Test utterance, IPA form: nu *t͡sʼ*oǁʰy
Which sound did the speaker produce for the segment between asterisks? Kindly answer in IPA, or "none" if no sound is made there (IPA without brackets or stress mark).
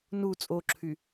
t͡sʼ